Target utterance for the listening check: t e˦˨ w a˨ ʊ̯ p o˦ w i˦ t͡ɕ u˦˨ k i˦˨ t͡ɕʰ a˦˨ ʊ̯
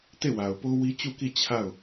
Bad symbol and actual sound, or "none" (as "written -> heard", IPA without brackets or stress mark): none